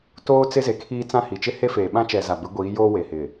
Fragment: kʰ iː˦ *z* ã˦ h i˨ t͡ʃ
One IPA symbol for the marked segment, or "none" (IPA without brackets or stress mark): t͡s